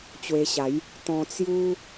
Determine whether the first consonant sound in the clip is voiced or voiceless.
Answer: voiceless